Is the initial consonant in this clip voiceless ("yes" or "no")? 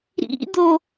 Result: no